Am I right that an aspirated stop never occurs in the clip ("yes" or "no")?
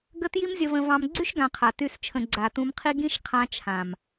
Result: no